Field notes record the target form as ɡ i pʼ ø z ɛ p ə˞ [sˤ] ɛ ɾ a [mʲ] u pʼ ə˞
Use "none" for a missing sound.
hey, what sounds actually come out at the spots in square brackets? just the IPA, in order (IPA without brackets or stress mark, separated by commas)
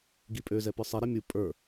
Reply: sˤ, mʲ